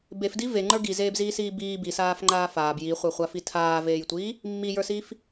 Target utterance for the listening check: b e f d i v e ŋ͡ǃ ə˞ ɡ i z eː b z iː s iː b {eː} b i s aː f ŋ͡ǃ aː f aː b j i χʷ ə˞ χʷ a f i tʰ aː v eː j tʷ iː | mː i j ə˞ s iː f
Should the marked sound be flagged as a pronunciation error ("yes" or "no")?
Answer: yes